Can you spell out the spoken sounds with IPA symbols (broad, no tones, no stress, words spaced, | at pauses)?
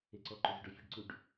eǀɔǃʏ zʏɖɔfʲeɖǀuɖ